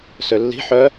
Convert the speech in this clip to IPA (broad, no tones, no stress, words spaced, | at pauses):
sølːi̤ ħœ